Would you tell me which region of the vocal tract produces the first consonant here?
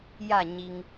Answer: palate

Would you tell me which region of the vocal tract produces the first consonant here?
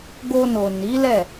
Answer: velum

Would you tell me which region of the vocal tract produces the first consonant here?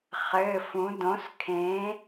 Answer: uvula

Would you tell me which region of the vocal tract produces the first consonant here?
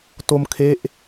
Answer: tongue tip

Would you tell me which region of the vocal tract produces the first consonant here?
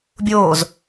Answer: lips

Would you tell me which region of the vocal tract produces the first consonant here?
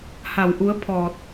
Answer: throat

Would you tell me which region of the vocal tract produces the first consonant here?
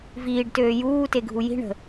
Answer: lips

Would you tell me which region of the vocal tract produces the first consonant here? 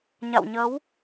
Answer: palate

